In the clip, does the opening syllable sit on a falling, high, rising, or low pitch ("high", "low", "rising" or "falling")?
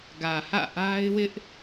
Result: low